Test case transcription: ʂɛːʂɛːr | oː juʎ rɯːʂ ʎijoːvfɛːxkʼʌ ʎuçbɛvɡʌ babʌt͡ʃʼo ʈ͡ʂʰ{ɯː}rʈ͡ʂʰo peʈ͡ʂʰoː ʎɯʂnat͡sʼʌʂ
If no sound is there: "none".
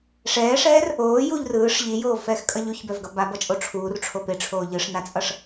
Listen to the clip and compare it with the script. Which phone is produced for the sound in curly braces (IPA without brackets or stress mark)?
uː